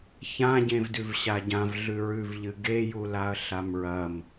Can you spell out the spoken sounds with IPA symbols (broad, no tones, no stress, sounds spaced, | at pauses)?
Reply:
ç ã ɟ ẽ v d ʉ v ɕ a ɟ ã v ɮ ʉ ɹ ʉ v ʎ ɨ ɡ e j u l a ɐ̯ ɬ a m ɹ ɐ m